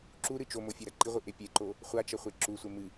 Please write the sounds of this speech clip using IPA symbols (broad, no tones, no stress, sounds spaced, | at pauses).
ǁ u ɾ ɨ t͡ʃ o m o fʲ e ɾ ɐ ǃ i ʁʷ ɨ ʔ e pʲ e ǃ o | χʷ a t͡ʃ ɐ χʷ e ǁ u sʷ e m ɨ